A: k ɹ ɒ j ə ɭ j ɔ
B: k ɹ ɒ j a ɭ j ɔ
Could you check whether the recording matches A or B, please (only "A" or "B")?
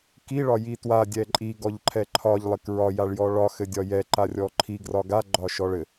B